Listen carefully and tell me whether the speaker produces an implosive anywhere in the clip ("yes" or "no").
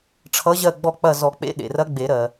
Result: yes